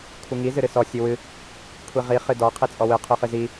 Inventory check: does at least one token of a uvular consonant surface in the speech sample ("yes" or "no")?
yes